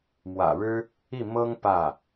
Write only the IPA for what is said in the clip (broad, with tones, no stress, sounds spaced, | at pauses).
m w ä̰˨˩ ɻ ɻ̩˥ | i˥˩ m ɤ˥ ŋ p ä˥˩